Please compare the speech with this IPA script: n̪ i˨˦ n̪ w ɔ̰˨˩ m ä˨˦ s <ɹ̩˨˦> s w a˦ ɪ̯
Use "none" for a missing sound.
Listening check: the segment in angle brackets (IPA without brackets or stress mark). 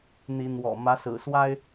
ɹ̩˨˩